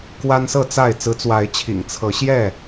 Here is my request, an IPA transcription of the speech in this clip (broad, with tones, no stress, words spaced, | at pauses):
kwa˦nsɤ˥˨t͡sa˥˨ɪ̯ t͡sɹ̩˨˦t͡swa˨˦ɪ̯t͡ɕʰḭ˨˩ŋ t͡sʰɤ˨˦ɕjɛ˥˨